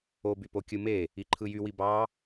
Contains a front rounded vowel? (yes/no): yes